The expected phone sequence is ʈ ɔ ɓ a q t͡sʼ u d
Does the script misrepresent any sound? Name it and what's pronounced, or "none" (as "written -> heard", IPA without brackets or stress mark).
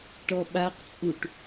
d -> ʈ